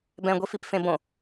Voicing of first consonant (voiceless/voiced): voiced